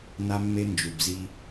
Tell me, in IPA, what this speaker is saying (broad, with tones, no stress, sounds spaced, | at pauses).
n a˦ mː e˦ n d͡ʒ u˨ b z i˦